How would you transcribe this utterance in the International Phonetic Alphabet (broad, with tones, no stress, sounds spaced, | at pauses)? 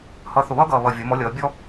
h ʌ˨˥ θ ʊ˨˩ β ʌː˥ ɡ ʌː˨˩ β ʌ˨˩ vʲ ʌ˩˧ m ɔ˨˥ lʲ ʌː˩˧ bʲ ɔ˥